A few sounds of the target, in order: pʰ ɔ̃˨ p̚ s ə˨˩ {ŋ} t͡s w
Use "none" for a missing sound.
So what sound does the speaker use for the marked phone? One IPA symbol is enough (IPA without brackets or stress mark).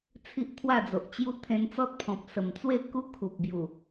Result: m